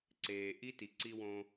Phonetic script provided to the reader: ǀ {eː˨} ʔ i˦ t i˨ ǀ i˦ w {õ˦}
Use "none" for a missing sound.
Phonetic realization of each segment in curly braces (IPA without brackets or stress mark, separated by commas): eː˨, õ˦